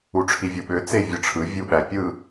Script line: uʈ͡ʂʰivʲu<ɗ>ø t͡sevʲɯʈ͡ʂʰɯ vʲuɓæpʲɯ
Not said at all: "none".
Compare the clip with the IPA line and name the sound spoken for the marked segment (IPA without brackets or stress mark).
ɓ